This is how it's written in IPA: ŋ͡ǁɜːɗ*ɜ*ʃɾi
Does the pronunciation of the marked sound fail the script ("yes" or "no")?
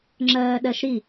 no